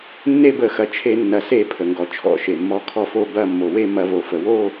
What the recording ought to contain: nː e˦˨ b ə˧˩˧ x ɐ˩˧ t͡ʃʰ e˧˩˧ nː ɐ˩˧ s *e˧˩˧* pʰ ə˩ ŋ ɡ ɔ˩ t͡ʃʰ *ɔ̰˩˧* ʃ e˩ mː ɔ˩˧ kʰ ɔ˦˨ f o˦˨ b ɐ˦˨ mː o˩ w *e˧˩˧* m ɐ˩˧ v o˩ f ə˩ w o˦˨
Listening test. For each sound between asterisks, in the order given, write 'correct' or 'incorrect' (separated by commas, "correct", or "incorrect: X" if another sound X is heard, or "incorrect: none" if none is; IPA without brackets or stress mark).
correct, correct, incorrect: e˦˨